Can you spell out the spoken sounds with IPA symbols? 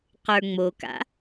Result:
qə˞ŋ͡moka̰

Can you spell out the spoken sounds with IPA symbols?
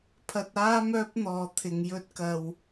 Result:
pʰɐ˧t̚ aː˥ mœː˥p̚n̪ɔː˨ t̪ʰɪ˨ŋ jɵ˥t̚ kɐ˨w

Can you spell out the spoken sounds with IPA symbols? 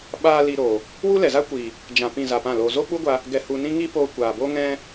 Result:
ɓaː˧ li˧ɾoː˨ | wu˦lɛ˨za˦kʷiː˨ | d͡ʒã˧ pĩ˦˨za˧pã˦˨loː˧ zo˦k͡pu˦ɡʷa˧ | ɡɛ˧hu˧nĩ˦ ŋi˦poː˧kʷaː˨bo˦ ŋɛ̃˧

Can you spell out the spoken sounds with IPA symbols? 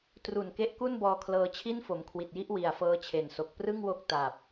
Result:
tru˨˩n ke˦˥ʔku˥˩nbɔː˧kʰlɤː˧ t͡ɕʰi˥˩nfo˩˦mkʰwi˨˩t̚ji˦˥ʔ wi˨˩a̯fɤː˦˥t͡ɕʰe˩˦nso˨˩k̚ prɯ˥˩ŋwo˦˥k̚ ta˨˩p̚

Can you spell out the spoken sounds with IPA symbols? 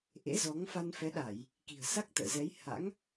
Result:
ʔḛ˧˥zɔ˨˦ŋ fa˧nfɛ˨˦ɗa˧˩˨j | ki̤˨˩ə̯sa˦˥k̚t̪ə̰ː˧˨zɛ˨˦j ha̰˧˥ŋ

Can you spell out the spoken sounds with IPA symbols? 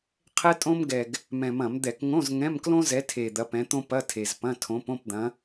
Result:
qʰɛ˥tʼõ˥mɡɛ˨˩ɡ | mɛ̃˨˩mɐ̃˧˩˧md̪ɛ˧˩˧k ŋõ˧˥˧zŋɛ̃˧˥˧m klõ˥zɛ˨˦tʰe˨˩ d̪ɐ˨˦pɛ̃˨˦t̪õ˥ pɐ˧˥˧tʰe˨˩zpɐ̃˧˥˧ tʰõ˨˦põ˧˥˧pd̪ɐ̃˨˦

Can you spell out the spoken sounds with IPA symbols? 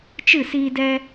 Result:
t͡ʃɨ˦˨siː˧dɛ˧

